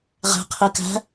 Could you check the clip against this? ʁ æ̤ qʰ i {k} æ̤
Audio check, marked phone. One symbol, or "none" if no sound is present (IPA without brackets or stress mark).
k